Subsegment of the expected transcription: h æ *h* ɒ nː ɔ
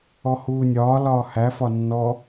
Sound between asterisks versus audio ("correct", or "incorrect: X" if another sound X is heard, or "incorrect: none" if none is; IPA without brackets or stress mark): incorrect: f